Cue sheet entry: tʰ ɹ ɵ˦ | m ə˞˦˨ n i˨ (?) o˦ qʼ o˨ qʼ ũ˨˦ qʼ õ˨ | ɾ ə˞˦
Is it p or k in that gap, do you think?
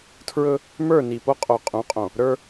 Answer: p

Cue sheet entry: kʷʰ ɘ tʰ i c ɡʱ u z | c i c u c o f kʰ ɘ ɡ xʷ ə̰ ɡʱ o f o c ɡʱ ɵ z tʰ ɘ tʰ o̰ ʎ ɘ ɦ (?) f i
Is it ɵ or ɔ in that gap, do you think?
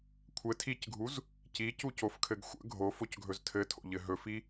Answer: ɵ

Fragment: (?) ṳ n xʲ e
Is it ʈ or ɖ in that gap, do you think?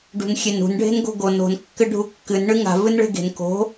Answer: ɖ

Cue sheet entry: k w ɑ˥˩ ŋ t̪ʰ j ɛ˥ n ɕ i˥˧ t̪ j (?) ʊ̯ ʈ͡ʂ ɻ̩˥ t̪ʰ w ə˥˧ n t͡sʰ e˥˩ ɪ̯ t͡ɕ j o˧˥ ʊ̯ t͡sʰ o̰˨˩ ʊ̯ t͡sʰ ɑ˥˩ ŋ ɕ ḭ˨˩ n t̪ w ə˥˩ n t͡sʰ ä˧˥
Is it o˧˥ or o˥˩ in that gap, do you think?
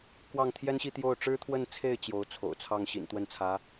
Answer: o˥˩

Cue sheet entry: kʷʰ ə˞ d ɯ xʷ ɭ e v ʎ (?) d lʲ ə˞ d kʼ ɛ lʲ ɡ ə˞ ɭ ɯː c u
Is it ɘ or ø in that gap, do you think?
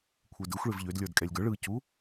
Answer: ø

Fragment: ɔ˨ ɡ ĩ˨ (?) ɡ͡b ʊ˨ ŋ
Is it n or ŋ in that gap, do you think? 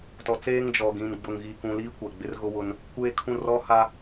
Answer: n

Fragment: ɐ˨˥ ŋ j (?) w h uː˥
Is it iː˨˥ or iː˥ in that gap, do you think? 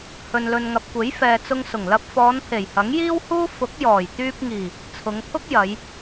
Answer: iː˥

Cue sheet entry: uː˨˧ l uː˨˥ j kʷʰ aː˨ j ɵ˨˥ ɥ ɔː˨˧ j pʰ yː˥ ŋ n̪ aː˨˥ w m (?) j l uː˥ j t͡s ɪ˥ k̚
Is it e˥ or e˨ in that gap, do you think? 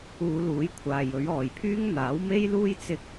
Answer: e˥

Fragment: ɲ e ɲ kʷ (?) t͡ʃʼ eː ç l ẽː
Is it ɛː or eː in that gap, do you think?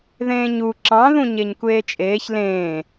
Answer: eː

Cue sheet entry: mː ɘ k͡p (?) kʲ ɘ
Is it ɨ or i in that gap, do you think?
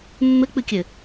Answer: ɨ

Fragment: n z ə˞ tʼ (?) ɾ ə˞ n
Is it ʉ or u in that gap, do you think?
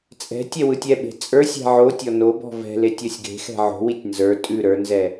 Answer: ʉ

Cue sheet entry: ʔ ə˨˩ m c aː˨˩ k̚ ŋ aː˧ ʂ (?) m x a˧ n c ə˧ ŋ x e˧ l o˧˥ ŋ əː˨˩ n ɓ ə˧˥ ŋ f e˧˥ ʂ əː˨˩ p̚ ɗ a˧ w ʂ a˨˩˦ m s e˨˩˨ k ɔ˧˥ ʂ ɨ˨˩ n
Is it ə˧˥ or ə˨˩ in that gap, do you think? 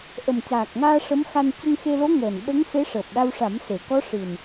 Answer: ə˧˥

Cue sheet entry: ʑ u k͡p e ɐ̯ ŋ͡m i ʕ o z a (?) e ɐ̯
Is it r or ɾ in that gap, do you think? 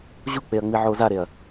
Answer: ɾ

